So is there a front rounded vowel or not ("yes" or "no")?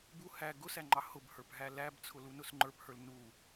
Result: no